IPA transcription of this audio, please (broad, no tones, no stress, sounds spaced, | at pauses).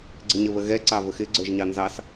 ɡ͡ǀ ɪ ɲ ə β ə ɣ ɛ ǀ ɑ v ə x ɪ ɡ͡ǀ ə˞ ʒ ɲ ɑ n z ɑ s